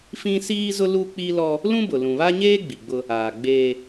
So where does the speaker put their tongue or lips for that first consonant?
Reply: lips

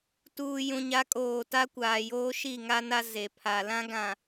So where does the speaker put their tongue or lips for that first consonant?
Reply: tongue tip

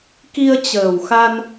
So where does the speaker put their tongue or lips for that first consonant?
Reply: velum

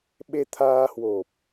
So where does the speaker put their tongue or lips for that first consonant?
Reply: lips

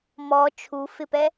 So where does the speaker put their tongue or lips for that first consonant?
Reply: lips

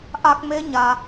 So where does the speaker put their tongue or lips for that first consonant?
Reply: throat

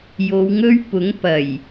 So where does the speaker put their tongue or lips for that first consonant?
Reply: palate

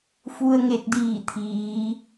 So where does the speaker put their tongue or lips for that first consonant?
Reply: lips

